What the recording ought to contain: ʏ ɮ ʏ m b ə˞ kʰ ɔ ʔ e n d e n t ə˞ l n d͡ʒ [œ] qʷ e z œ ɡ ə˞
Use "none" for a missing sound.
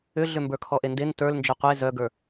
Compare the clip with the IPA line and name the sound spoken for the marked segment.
œ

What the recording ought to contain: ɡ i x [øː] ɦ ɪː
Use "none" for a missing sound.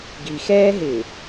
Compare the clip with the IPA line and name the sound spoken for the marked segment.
ɛː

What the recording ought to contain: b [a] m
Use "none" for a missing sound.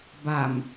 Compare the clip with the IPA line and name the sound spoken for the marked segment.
a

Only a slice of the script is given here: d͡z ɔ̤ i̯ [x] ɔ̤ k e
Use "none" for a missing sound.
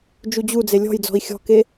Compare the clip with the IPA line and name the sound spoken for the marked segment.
xʲ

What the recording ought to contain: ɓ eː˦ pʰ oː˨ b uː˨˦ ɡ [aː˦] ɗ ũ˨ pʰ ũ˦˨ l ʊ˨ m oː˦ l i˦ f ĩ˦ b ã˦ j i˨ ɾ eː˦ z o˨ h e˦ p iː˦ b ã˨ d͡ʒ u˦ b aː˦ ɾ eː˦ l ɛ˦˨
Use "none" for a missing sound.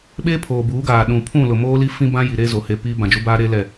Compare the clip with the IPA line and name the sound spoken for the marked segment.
aː˨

